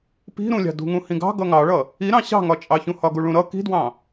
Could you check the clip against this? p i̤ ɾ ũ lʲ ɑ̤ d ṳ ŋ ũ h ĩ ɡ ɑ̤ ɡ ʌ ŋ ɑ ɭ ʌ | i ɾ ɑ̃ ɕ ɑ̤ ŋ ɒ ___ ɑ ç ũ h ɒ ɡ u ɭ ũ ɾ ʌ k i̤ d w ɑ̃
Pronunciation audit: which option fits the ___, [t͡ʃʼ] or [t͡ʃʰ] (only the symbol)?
t͡ʃʼ